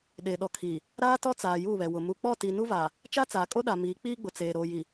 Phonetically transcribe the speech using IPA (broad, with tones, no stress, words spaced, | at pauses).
ɗeː˨ɗɔ˨ kʰiː˨ | ɾaː˦tɔ˦ t͡saː˨ juː˦˨βɛ˨ wʊ˨ mu˨k͡pɔ˦˨ tiː˨nu˦vaː˨ | t͡ʃa˦t͡saː˨kʼo˦ ɗa˨ miː˨˦k͡piː˦ɡ͡bʊ˨t͡seː˨ ɾoː˨ji˨